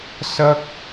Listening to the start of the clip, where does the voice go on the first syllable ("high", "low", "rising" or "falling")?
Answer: high